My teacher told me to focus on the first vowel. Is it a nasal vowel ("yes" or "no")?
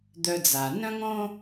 no